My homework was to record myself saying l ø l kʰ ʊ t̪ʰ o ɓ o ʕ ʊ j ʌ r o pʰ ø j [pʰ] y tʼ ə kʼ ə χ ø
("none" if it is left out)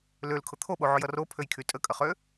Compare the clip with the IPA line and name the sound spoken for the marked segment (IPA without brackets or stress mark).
kʰ